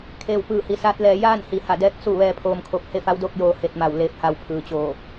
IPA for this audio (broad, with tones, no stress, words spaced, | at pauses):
kʰeː˧˩wpɯː˧˩hi˩˧ saː˧˥t̚lɛː˧ jaː˥˨nhi˩˧ha˧˩dɛː˧˥k̚ su˥˨ ʋɛː˧pʰoː˧mkʰo˧p̚ he˥˨fa˧˥wdoː˥˨k̚joː˧ he˧t̚ma˧˩w leː˧˥p̚ha˧w pʰɯː˩t͡ɕoː˧˩